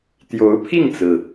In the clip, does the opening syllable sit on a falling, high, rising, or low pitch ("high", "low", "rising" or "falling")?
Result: rising